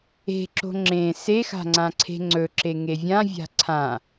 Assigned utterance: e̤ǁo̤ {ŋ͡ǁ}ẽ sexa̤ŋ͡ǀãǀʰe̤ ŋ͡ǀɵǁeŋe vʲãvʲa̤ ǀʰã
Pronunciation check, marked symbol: correct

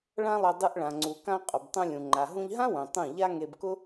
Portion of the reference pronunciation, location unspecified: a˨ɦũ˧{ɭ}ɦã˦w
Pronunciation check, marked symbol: incorrect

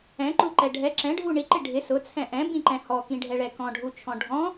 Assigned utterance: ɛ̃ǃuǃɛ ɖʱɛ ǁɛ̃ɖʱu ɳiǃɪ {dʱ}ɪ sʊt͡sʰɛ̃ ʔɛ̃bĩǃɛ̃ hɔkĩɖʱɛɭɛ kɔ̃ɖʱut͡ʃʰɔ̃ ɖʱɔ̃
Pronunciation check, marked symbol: incorrect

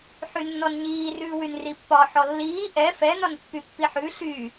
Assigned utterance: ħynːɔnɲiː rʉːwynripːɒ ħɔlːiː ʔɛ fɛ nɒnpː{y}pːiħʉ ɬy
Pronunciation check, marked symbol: correct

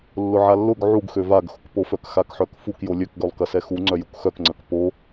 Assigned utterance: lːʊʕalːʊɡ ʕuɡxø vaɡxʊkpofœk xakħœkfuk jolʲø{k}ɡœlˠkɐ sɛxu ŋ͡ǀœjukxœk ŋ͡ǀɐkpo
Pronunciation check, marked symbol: correct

